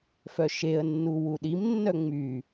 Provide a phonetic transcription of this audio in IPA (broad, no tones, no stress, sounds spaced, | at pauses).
f œ ʃ e ə̯ nː u w u ɗ i m nː œ ŋ͡m y